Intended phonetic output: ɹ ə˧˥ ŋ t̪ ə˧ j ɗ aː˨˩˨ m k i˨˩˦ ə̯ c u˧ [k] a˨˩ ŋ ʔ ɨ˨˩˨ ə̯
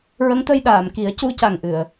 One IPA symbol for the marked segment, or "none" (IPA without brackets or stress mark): c